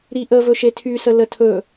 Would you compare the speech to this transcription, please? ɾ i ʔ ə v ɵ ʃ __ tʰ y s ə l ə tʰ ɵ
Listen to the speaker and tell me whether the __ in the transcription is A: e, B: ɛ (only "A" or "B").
A